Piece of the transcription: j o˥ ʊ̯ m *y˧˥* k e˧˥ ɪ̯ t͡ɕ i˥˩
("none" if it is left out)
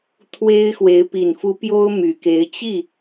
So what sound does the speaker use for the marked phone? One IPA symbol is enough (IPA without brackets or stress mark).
y˨˩